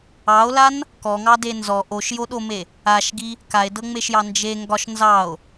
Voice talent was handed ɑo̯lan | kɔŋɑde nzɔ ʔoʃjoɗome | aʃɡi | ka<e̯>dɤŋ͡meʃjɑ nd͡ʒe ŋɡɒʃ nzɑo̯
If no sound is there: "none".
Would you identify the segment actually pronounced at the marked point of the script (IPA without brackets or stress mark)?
e̯